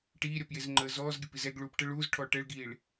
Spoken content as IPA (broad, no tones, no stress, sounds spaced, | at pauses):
ʈ iː ɾʲ ɒ p j e z ŋ͡ǃ əː z ɔː z ɡʲ ɐ p i z ɛ ɡ ɭ uː p ʈ ə ɭ uː z ʈʰ ɔː ʈ ɛ ɭ ɡ iː ɭ